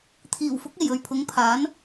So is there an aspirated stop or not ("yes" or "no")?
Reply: yes